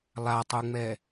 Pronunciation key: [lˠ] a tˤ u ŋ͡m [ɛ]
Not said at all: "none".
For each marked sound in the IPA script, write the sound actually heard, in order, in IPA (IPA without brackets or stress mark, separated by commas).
lˠ, ɛ